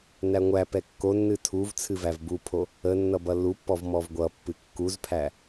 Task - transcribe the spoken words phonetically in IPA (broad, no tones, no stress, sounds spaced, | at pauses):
n æ ŋʷ æ p ɛ kː o nː ɨ tʰ u v t͡sʰ ɨ v æ v b u pʰ o | ə nː ʌ b ʌ lː u pː ɔ v m ɔ v ɡʷ ʌ pː ɨ kː u z pʰ æ